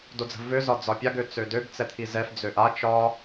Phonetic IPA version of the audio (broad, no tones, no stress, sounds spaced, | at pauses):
d o d͡z ə̤ v ø z ɒ d͡z ɒ pʲ a ɡ ø t͡s ø d ø ɡ t͡s ɛ t̪ʰ i z ɛ f d͡z ø ʔ a t͡ʃ ɒ